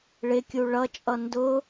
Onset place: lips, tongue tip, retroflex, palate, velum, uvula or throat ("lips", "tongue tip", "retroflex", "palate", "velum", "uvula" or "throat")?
retroflex